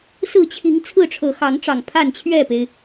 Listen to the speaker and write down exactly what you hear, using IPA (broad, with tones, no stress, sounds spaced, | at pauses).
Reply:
s ɹ̩˥˨ t͡ɕʰ i˨˦ ŋ t͡sʰ ɹ̩˥˨ ʈ͡ʂʰ ɤ˨˦ x ɑ˨˦ ŋ ʈ͡ʂ ɑ˨˩ ŋ pʰ a˥˨ n t͡ɕʰ ɥ ɛ˥˨ p e˩ ɪ̯